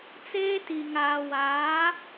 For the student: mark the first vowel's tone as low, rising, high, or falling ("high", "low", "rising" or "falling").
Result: high